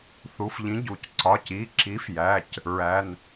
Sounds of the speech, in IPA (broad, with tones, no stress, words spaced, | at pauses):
θu˩˧˩fʎĩ˨˥ ɟu˩˧˩c ǀɒ˩˧˩ci˩˧˩ǁi˨˥fjæ˩˧˩c | ɹæ˩˧˩n